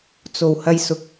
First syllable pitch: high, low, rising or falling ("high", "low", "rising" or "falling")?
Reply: low